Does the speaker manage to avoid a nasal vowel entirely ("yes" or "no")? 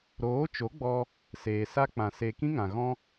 no